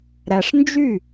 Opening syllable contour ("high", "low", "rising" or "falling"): low